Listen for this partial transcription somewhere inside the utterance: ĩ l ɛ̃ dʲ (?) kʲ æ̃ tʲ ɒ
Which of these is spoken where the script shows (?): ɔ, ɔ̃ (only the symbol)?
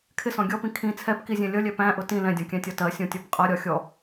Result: ɔ̃